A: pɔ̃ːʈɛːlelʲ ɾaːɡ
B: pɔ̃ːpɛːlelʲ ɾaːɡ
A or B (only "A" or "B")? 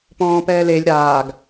B